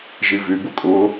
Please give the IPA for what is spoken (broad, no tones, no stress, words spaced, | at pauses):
ʒivy bʊkʼʊː